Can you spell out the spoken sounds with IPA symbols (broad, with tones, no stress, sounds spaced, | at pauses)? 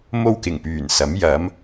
m o˥ w k ɪ˨˩ ŋ p yː˨˩ n s ɐ˨˥ m j ɐ˨˥ m